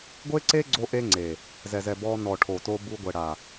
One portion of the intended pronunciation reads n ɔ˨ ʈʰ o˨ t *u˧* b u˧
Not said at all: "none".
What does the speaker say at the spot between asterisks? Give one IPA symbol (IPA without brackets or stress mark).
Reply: o˧